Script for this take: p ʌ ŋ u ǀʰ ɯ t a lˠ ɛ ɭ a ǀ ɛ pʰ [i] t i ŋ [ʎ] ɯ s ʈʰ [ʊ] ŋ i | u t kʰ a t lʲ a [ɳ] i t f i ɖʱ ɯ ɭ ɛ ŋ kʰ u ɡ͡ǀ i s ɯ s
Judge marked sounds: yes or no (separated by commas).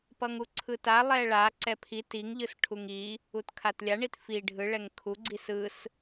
yes, yes, no, yes